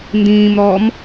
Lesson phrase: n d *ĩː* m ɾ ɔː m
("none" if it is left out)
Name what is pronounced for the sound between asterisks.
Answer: ĩː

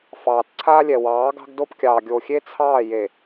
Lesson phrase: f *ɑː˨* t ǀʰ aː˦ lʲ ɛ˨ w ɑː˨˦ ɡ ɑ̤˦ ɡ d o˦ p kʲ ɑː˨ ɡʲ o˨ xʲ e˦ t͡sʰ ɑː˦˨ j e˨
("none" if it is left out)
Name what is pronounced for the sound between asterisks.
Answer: ɑː˨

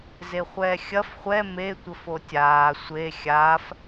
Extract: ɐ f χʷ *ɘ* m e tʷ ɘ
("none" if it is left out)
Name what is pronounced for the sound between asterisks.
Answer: ɛ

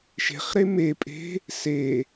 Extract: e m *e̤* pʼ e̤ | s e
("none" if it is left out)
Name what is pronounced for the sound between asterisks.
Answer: e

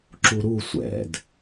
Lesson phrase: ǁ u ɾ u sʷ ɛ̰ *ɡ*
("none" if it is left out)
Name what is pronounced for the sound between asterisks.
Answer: d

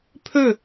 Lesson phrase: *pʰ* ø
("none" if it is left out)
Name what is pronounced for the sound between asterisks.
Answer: pʰ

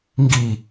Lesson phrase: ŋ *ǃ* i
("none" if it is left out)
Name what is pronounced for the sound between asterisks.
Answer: ɡ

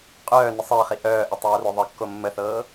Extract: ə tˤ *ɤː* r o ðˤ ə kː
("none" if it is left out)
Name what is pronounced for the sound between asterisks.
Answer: ɤː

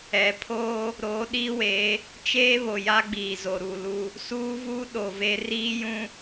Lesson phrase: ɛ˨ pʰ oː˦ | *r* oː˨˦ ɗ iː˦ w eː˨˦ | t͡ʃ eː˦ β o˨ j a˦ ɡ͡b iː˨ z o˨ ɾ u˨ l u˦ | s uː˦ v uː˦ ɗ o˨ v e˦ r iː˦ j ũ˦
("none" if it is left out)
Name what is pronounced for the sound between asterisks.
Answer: ɾ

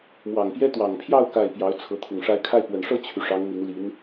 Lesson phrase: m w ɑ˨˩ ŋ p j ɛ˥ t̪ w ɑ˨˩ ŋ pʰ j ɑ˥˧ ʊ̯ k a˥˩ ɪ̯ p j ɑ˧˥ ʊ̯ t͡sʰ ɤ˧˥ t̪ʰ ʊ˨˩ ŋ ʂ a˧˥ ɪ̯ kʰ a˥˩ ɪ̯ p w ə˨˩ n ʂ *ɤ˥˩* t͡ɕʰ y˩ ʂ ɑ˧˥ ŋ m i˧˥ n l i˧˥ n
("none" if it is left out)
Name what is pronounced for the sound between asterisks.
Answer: ɤ˥˩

